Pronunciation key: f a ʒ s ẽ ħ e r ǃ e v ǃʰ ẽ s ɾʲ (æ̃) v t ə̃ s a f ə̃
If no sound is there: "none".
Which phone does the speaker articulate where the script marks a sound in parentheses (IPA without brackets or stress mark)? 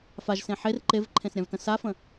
ã